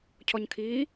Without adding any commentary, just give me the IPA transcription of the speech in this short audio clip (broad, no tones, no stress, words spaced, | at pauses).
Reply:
cʰɔɲkʰiː